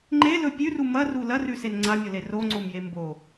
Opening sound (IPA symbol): ŋ͡ǃ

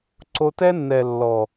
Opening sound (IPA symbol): ǀ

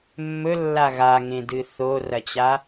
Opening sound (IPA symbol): mː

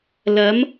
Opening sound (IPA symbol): l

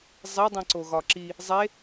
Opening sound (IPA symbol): zˤ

